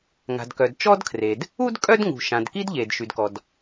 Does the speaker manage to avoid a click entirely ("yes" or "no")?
yes